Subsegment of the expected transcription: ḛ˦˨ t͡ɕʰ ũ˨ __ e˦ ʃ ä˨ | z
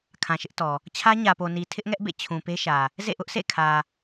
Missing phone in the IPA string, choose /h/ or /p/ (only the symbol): p